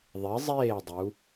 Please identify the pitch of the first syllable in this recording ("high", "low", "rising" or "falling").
rising